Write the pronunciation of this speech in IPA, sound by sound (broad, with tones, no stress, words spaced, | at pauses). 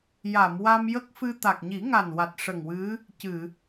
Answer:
ja˨˩˨mwa˧mjə˦˥k̚fɨ˧ t̪a˨˩k̚ɲi˨˩˦ŋa˨˩nwa˨˩t̚ ʂə˨˩ŋwɨ˧˥ | cɨ˨˩˨